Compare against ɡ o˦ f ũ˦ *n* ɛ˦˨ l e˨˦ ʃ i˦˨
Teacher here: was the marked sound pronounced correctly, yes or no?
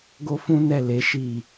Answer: yes